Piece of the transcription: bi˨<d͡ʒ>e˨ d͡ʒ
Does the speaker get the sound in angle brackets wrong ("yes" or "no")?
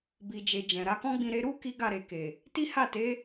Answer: no